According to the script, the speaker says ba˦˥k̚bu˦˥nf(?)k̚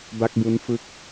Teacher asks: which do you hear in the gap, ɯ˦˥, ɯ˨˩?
ɯ˦˥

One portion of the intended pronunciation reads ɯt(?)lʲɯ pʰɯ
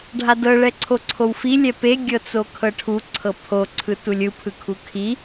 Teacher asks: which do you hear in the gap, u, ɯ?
u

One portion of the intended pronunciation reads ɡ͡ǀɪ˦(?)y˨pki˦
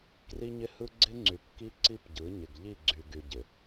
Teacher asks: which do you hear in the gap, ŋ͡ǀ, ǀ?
ŋ͡ǀ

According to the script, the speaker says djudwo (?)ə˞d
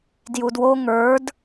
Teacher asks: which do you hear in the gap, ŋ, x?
ŋ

